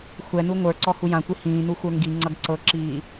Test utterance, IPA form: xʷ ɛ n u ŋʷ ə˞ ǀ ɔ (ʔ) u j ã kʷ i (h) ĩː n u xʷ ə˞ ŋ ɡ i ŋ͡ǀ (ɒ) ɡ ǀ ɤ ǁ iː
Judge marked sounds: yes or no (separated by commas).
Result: no, yes, no